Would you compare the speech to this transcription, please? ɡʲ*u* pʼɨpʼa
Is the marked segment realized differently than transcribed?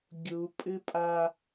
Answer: no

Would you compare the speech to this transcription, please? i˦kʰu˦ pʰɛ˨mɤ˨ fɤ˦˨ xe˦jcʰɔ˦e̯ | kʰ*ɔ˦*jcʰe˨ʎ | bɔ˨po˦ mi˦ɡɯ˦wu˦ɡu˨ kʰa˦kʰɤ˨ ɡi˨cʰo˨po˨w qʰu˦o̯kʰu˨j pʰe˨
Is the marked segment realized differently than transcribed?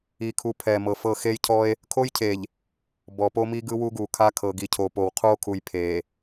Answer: yes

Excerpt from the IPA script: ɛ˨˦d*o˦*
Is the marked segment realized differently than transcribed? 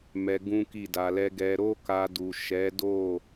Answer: yes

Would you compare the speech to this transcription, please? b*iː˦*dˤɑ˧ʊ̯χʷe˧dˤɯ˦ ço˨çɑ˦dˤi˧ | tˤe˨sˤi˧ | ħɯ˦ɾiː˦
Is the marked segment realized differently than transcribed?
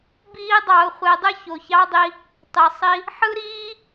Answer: no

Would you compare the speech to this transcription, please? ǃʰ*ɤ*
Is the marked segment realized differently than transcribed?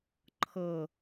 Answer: no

